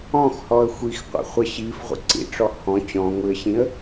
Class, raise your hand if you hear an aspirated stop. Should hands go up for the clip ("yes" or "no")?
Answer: no